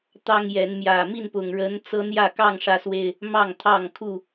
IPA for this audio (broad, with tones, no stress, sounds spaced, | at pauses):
t̪ ɑ˦ ŋ j ɛ˨˦ n m j ä˨˩ m i˥˨ n p ʊ˨˩ ŋ ɻ ə˨˦ n t͡s ɤ˦ n̪ j ä˥˨ k ɑ˥˨ ŋ ʂ ä˨˦ s w e˨˩ ɪ̯ | m ɑ˥˨ ŋ t̪ʰ ɑ˥˨ ŋ kʰ u˥˨